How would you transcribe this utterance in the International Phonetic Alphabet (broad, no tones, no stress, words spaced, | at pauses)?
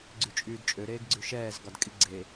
ɡ͡ǀyt͡ʃʼyːdt͡ʃʼø ɾeːɡɡ͡ǀyʃɛːz ɡɒdkʼiɡ͡ǀe